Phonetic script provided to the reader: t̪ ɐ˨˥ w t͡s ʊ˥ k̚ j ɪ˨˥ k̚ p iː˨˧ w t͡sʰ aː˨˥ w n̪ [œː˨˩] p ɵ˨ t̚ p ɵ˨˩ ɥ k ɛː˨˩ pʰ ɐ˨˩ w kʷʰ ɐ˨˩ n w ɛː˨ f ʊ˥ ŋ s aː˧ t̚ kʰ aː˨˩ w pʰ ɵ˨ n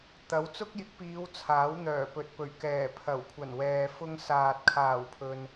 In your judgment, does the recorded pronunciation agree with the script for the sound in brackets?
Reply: yes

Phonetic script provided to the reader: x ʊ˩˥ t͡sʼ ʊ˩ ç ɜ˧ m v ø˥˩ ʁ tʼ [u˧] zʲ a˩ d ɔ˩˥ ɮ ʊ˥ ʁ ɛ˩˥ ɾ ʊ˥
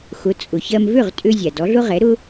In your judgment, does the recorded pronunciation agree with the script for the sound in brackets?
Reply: no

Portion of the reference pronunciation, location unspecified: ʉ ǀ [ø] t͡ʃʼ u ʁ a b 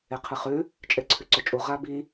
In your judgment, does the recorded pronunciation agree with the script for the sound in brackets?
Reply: no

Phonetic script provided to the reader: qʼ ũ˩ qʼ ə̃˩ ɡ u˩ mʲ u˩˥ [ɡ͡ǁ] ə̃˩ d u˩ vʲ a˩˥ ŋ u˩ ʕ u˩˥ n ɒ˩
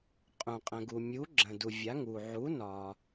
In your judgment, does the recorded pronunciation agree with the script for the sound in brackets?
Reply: yes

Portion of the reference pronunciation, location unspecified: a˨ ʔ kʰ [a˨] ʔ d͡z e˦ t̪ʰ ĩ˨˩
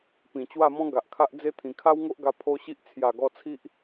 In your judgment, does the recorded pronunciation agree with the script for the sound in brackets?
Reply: no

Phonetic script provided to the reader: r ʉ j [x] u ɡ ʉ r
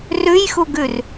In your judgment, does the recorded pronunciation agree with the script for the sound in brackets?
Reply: yes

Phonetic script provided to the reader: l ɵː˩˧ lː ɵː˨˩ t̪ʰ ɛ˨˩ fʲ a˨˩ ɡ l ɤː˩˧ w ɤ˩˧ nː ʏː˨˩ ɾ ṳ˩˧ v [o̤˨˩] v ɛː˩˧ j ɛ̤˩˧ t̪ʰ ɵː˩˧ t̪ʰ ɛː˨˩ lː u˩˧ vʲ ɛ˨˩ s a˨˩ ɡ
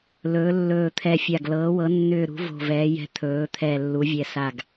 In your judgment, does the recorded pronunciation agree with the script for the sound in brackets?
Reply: yes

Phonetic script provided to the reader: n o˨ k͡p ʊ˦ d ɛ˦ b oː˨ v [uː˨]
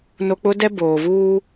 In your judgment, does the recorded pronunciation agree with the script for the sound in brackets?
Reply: no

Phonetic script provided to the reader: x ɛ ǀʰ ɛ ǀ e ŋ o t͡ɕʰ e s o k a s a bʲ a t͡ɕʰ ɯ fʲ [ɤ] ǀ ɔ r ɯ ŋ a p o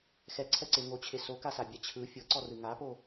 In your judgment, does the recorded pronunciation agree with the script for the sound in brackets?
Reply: yes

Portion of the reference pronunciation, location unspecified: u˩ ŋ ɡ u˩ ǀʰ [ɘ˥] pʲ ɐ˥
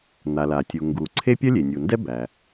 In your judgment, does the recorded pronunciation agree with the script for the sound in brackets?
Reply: no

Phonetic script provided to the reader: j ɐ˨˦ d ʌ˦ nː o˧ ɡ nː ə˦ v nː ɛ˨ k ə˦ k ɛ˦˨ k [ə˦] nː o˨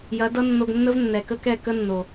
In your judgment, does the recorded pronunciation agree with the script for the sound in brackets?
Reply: yes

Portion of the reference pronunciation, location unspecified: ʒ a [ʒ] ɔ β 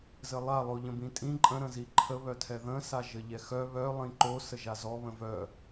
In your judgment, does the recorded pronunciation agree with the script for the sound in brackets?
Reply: no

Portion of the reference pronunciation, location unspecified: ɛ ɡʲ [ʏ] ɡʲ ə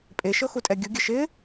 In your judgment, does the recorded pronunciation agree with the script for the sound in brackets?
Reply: no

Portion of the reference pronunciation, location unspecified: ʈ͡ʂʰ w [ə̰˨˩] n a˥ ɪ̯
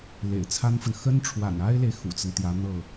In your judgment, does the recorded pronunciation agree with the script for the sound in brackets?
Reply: no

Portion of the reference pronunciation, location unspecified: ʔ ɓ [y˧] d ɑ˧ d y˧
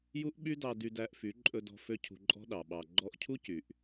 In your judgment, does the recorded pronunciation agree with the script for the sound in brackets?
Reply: no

